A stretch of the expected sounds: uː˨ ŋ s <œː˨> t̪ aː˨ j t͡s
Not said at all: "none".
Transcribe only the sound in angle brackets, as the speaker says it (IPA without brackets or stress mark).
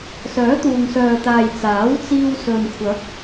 œː˨